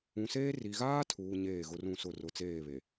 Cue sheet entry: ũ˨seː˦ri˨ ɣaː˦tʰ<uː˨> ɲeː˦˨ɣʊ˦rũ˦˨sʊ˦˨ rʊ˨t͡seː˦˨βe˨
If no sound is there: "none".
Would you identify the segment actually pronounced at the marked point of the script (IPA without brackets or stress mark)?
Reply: uː˨